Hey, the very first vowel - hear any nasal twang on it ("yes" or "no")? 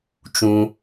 yes